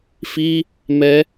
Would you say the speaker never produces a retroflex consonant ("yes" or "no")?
yes